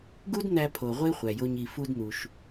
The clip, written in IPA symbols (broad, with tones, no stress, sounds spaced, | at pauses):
ɡ u˥ d n̪ æ˧ pʰ o˩ ʁʷ e˥ χʷ æ˩ j o˧ ɲ i˩ f u˧ d n̪ u˩ ʃ